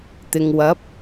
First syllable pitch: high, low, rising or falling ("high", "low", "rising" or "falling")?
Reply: low